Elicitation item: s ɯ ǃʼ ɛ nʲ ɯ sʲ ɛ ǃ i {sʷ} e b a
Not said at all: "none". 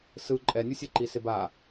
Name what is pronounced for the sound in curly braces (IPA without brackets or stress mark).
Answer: s